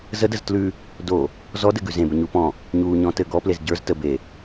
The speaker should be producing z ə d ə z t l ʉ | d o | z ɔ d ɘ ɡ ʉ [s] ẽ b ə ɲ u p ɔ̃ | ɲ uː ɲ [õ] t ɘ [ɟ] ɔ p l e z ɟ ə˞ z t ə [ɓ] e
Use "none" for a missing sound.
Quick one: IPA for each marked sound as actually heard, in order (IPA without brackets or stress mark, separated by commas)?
z, ɔ̃, ɡ, b